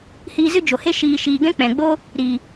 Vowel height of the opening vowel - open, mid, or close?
close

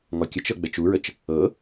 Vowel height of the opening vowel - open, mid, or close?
mid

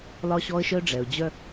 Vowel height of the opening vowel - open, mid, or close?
open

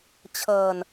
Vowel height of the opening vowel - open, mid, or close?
mid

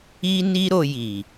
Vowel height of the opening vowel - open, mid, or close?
close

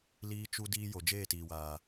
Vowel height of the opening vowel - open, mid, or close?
close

